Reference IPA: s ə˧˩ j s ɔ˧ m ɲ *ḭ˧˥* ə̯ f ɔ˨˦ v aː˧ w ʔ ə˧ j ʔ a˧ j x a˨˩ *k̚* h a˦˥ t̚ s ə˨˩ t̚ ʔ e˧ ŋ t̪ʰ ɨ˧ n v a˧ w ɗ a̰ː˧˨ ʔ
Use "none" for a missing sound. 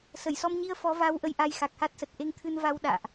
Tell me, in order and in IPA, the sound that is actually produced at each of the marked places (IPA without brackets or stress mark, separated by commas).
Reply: i˧, k̚